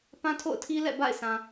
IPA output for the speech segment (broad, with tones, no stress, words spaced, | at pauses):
pã˦tʰo̰˦˨ʊ̯tʰi˦lɛ̰˦˨ ba̰˦˨ɪ̯sã˨